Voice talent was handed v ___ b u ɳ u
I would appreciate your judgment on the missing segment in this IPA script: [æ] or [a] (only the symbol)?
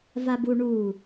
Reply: a